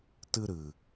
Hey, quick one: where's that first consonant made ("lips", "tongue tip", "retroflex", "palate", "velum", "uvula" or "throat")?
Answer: tongue tip